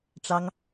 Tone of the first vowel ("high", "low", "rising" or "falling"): high